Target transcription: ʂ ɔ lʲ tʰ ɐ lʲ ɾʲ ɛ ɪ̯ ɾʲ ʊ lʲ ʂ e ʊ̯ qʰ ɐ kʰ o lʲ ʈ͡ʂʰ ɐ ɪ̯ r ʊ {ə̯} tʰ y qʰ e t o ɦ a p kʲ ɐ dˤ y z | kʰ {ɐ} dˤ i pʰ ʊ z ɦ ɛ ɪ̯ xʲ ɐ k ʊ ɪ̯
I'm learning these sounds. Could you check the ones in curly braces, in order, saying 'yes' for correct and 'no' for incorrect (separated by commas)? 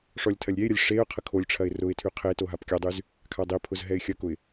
no, no